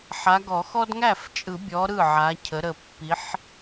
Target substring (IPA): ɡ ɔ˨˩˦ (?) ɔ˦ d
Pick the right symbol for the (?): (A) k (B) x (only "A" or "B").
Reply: B